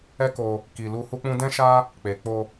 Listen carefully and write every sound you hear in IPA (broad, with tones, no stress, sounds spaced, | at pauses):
ɛ˦ k o˧ | k i˨ l u˧ h u˦ k͡p ũ˦ d ɛ̃˦ ʃ a˦ | k͡p e˨ k͡p o˧